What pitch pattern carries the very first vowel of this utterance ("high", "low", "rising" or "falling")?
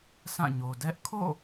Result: falling